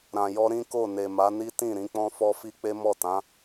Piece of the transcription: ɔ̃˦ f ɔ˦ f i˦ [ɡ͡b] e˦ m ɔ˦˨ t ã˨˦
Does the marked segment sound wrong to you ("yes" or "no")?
yes